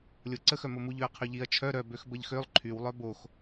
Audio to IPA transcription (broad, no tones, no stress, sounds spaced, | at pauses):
lʲ o ǀ ə x œ m o m u ʎ ø ɐ̯ qʰ y ʎ i ɐ̯ t͡ʃʰ œ ɾ œ b ø x b ə ʎ x ø lˠ ǃʰ y w lˠ œ b o x